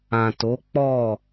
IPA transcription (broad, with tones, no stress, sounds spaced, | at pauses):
ã˨ t o˨˦ k͡p ɔ˦˨